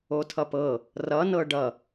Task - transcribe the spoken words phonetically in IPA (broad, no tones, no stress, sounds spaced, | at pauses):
o tʰ ʌ p ɤ | r ʌ n ɤ ɖ ʌ